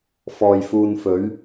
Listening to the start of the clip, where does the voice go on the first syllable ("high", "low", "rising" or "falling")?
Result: low